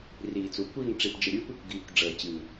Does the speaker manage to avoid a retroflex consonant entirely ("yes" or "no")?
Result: no